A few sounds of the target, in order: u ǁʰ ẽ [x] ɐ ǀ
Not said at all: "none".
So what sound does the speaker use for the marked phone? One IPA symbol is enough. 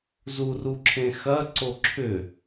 x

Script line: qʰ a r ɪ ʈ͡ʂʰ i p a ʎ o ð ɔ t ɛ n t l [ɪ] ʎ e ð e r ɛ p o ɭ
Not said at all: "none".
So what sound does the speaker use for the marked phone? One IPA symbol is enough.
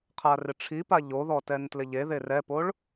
ɪ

